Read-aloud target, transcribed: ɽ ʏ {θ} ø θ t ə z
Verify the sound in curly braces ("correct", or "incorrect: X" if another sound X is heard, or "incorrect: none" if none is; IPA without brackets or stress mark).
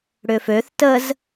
incorrect: f